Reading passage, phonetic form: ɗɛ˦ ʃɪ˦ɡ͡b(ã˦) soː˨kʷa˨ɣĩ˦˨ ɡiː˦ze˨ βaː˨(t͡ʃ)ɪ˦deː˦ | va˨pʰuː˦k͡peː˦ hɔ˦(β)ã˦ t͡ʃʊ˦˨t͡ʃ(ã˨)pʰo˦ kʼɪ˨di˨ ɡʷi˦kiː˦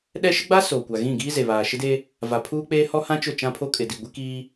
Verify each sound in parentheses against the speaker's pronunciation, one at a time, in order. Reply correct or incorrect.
incorrect, incorrect, incorrect, incorrect

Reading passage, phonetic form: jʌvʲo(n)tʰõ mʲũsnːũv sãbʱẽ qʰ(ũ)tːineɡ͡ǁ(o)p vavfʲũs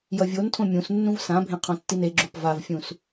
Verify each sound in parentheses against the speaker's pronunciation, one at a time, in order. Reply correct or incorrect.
correct, incorrect, correct

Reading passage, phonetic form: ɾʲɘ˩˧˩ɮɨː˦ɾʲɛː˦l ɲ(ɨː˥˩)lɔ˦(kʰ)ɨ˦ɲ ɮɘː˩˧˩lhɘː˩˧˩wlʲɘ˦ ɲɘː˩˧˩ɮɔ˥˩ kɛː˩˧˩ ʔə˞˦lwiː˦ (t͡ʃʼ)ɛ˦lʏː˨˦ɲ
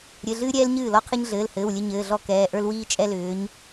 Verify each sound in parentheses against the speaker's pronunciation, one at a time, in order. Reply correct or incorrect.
correct, incorrect, correct

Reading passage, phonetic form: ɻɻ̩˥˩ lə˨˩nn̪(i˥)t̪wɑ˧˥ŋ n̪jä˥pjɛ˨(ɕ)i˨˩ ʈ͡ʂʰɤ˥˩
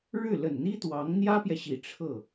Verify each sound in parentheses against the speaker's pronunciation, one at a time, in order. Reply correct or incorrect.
correct, correct

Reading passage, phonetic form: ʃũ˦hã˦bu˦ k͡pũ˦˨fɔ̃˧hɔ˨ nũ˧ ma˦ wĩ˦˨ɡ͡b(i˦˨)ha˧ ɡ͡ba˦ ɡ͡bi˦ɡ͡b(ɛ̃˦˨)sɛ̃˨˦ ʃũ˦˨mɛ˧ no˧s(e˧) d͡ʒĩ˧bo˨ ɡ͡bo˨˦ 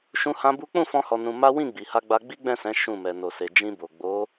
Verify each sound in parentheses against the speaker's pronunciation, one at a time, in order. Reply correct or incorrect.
incorrect, correct, correct

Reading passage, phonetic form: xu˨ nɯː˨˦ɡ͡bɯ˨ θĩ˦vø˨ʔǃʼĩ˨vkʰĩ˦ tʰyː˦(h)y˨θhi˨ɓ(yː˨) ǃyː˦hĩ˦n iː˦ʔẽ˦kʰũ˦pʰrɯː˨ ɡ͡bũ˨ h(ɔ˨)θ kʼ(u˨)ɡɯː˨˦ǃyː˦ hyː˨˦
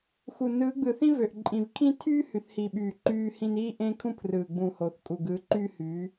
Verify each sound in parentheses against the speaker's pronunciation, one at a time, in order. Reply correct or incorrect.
correct, correct, incorrect, correct

